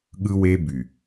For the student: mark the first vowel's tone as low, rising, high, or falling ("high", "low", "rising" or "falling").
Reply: high